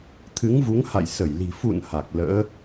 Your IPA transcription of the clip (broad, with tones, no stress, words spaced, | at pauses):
t̪ʰɨ˨˦ŋvu˨˦ŋha̰˧˨j sə˧˩jli̤˨˩ fṵ˧˨n ha˨˩k̚ lə̰ː˧˥